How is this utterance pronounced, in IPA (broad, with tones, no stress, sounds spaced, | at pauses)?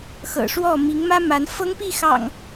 x ɤ̰˨˩ ʂ w ɔ˥˨ m i˨˦ ŋ m ä˦ m a˨˦ n f ɤ˦ ŋ p i˥˨ x ɑ̰˨˩ ŋ